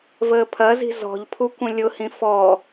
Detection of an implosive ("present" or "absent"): absent